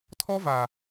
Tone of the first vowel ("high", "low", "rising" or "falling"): high